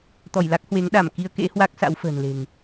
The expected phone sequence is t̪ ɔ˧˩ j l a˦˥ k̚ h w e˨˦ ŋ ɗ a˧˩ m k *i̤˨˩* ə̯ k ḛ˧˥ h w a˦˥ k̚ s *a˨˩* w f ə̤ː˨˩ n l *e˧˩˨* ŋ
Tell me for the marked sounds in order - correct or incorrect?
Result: incorrect: i˧, incorrect: a̰˧˥, incorrect: e̤˨˩

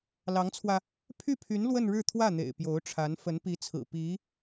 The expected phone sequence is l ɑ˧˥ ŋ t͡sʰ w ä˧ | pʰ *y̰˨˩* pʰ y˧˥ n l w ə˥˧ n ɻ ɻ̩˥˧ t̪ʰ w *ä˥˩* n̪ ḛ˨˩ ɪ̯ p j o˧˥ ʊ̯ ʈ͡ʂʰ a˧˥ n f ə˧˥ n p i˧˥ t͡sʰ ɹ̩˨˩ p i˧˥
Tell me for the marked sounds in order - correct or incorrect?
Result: incorrect: y˥˩, correct

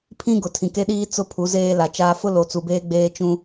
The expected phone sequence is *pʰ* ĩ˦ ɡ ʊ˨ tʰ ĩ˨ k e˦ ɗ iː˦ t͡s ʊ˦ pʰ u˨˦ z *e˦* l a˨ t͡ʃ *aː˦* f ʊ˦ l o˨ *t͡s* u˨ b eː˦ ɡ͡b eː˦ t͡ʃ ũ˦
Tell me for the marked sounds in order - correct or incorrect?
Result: correct, incorrect: eː˦, correct, correct

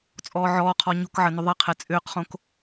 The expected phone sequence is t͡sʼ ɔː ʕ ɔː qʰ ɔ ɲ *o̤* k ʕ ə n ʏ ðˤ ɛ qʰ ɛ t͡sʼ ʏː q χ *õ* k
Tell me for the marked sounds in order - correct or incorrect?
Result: correct, correct

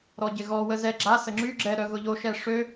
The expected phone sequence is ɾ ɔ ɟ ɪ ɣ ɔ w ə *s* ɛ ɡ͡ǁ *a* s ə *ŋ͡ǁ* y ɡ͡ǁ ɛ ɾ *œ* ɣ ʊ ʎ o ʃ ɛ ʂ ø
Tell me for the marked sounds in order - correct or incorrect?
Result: incorrect: z, correct, correct, correct

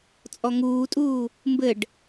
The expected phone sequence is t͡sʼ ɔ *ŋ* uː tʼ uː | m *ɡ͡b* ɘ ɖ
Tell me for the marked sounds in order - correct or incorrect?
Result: correct, incorrect: b

